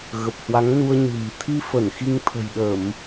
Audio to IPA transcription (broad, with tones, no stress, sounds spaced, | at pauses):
ɣ ə˨˩ p̚ h w a˨˦ ŋ n u˧ ə̯ ɲ ɨ̤˨˩ m t̪ʰ i˧ f ə˧˩ n x i˧ ŋ t̪ʰ ə̤˨˩ j ɗ ə˧˩˨ m